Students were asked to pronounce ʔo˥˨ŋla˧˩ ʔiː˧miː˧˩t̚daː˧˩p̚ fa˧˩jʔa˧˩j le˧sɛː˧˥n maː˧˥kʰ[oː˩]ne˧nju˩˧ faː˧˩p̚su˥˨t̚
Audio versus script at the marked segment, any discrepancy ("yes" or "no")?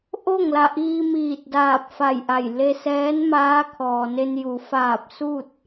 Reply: yes